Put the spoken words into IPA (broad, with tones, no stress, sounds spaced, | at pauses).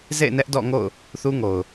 z ḛ˦˨ ɪ̯ n ɛ˦ ʔ d ɔ̰˦˨ ŋ o̰˦˨ ʊ̯ | θ u˦ ŋ o˨ ʊ̯